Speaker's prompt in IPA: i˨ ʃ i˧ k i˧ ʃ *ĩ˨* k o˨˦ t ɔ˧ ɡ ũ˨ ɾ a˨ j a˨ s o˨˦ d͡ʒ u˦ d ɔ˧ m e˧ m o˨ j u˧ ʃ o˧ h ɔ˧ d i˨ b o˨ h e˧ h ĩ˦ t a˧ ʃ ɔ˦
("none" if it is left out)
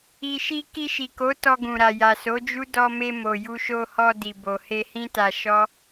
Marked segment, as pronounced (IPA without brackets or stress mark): i˨